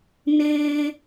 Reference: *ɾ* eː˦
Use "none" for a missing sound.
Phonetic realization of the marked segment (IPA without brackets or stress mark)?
n